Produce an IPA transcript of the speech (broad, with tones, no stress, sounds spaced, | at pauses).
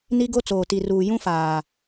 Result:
n i˦ ɡ o˦ t͡s oː˨ t i˨ r uː˨ j ũ˦ f aː˨